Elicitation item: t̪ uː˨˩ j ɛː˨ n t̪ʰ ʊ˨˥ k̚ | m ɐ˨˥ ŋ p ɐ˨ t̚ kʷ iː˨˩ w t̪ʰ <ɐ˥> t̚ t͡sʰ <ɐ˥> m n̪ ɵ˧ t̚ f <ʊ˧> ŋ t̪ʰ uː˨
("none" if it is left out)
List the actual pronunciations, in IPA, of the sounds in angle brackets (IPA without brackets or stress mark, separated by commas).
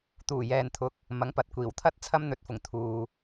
ɐ˥, ɐ˥, ʊ˨˩